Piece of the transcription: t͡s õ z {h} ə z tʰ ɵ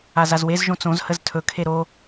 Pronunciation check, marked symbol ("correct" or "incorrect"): correct